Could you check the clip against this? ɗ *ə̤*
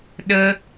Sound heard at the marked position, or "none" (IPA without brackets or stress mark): ə